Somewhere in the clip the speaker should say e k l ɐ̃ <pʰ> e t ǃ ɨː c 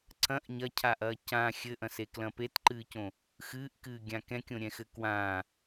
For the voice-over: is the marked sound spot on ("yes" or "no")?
no